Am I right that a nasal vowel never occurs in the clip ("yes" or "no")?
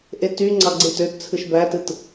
yes